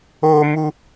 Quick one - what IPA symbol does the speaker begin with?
oː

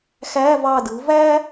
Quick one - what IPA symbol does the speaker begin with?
x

